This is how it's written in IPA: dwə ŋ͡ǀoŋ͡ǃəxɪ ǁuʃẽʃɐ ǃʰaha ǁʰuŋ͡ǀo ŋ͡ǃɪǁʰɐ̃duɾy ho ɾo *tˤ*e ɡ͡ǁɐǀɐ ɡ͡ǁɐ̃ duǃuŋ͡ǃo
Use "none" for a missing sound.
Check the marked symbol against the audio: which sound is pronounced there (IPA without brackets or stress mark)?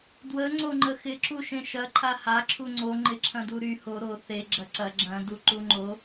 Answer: θ